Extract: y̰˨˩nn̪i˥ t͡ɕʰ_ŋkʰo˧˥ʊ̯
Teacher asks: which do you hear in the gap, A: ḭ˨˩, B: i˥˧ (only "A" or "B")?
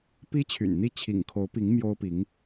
A